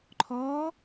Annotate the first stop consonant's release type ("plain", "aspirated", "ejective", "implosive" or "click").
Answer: click